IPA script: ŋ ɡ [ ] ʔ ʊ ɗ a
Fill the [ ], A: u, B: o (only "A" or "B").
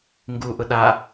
A